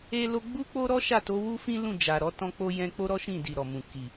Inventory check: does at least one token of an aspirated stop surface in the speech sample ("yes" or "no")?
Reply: no